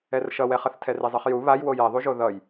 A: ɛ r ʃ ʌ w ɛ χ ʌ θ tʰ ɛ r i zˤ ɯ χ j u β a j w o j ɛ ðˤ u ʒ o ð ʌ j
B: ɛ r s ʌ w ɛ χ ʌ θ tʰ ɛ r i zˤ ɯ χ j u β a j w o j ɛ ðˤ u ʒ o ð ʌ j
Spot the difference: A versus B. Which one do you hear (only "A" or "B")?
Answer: A